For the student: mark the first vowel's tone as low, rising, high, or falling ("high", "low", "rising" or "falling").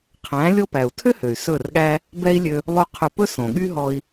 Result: rising